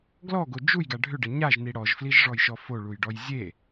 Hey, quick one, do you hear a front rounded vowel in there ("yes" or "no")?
yes